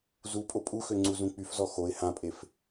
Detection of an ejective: present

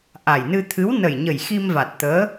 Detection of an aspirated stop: present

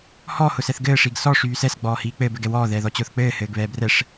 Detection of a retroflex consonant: present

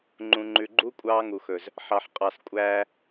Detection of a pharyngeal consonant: present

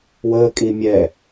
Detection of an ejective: present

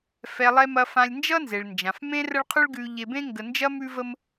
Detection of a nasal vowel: present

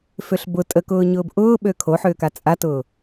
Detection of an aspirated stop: present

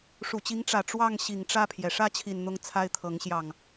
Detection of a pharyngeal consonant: absent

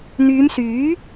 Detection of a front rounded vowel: present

